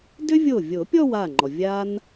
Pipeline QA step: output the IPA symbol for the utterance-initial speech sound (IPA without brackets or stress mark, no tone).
d